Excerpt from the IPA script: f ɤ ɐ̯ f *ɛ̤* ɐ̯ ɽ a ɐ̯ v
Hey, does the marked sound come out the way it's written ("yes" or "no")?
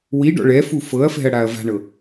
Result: yes